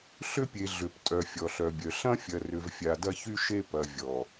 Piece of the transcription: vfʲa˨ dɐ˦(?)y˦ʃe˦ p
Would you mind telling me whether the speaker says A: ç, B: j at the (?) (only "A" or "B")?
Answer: A